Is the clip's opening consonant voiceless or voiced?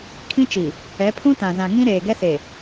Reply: voiceless